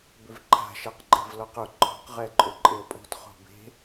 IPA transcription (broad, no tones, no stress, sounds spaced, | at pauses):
b ʏ v ǃʰ a̤ ʃ a q ǃʼ e̤ v l ɔ q ʊ ǃʰ ɔ̤ q ʁ ɛ ǃʼ ʏ ǃʼ ɪ ə̯ pʼ o̤ t χ o̤ b e̤